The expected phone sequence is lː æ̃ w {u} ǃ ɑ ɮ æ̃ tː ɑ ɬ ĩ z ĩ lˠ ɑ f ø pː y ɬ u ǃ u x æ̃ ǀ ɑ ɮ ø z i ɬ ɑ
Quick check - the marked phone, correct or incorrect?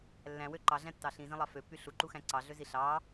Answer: incorrect